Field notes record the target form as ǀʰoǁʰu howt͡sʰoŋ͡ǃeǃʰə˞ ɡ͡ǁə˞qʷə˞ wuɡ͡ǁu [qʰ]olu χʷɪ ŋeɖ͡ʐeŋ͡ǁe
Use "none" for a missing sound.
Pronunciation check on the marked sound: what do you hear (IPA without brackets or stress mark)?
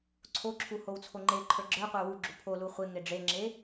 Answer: pʰ